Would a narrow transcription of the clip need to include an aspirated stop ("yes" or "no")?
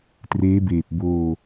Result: no